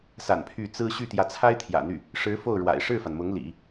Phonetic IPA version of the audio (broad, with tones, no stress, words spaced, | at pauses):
sa̰˨˩n pʰy˥˩ t͡sɹ̩˥ ɕy˥˩t̪jä˧˥t͡sʰa˥ɪ̯ t̪ʰjä̰˨˩n̪y˥˩ | ʂɻ̩˧˥ fo˥˩ʊ̯ɻwa̰˨˩ɪ̯ ʂɻ̩˥˩fa˩n mʊ˧˥ŋlḭ˨˩˦